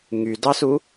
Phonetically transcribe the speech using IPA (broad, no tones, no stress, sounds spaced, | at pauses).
ŋ y d ɑ s u